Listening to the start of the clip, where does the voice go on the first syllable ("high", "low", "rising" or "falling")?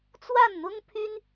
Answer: falling